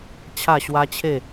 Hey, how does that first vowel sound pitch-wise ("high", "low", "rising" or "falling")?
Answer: falling